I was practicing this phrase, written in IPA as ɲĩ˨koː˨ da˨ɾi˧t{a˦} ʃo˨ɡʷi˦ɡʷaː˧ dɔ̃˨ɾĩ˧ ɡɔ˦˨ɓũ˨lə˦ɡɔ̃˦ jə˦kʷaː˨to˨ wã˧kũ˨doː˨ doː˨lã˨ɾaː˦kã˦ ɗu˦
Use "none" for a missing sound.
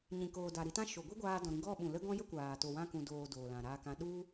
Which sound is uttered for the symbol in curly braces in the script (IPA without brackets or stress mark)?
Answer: ã˦